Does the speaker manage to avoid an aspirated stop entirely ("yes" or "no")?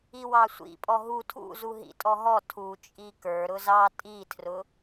no